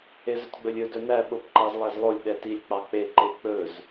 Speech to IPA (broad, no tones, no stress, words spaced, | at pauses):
ezɵtɡ͡bɵlʲɵ dɵnæ ɓopǃɑzlˠæzlˠolʲ ɗɛtilʲ k͡pɑk͡pe ǃek͡pɵz